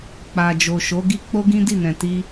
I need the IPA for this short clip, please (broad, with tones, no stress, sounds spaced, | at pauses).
k͡p a˨ d͡ʒ o˨ ʃ o˨˦ ɡ i˦ k͡p o˦ ɡ ĩ˦ d i˦˨ n ɛ̃˨ t i˧